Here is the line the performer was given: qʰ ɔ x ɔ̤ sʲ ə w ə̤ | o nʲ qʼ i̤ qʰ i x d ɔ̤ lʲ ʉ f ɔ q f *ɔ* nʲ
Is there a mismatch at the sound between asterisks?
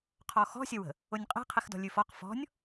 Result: yes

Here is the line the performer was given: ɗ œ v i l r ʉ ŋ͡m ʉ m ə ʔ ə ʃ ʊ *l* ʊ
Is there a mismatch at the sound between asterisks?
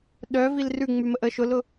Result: no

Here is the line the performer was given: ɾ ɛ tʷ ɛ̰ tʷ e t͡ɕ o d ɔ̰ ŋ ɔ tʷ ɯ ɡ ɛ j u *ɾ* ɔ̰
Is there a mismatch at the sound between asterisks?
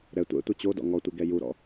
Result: no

